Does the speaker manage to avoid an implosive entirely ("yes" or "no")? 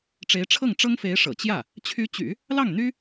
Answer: yes